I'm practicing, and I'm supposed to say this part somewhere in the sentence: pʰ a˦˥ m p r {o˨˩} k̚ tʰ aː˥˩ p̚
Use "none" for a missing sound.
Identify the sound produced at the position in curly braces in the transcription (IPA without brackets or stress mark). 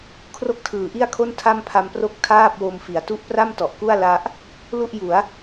o˥˩